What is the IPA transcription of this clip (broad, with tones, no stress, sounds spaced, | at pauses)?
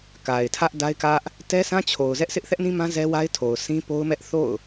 k a˨ ɪ̯ tʰ ä˦ ʔ d a˦ ɪ̯ k ä˦ ʔ | t ɛ˦ sʰ ã˦ t͡ɕʰ o˨ ʊ̯ z ɛ˦ ʔ sʰ ɪ˦ ʔ θ ɛ˦ ʔ n ĩ˦ m ã˦ z ɛ˦ w a˦ ɪ̯ tʰ o˨ ʊ̯ s ĩ˦ p o˦ ʊ̯ m ɛ˦ ʔ θ o̰˦˨ ʊ̯